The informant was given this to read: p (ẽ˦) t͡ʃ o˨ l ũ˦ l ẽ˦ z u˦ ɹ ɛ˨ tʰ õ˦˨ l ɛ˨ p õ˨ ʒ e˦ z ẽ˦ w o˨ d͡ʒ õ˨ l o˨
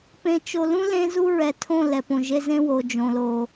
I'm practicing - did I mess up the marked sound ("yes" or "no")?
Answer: yes